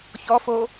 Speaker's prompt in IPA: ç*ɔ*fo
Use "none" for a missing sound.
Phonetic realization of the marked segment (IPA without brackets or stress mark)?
ɔ